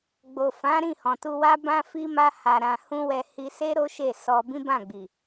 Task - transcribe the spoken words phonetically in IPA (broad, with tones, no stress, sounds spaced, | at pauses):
ɡ͡b o˨ f ã˨˦ ɾ ĩ˦˨ h ɔ̃˨ t u˧ w a˦ b ã˦ f i˦ m a˦ h a˧ ɾ ã˧ h ũ˦ w ɛ˧ h i˧ s e˦ ɾ o˦ ʃ e˦˨ s ɔ˧ b ĩ˦ b ã˦˨ ɡ͡b i˨